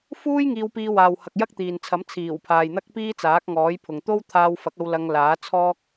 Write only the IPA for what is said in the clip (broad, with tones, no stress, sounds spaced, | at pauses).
f uː˥ j ŋ iː˧ w p iː˧ w aː˨ w h ɐ˨ k̚ j ɐ˥ k̚ t̪ iː˨ n t͡sʰ ɐ˨˥ m t͡sʰ iː˨˩ w pʰ aː˨ j n̪ ɐ˥ k̚ p iː˥ t͡s aː˨˥ k̚ ŋ ɔː˨˥ j pʰ ʊ˨ ŋ t̪ o˥ w t̪ʰ aː˧ w f ɐ˨˥ k̚ ɐ˧ w l ɐ˧ ŋ l aː˨˥ t͡sʰ ɔː˥ k̚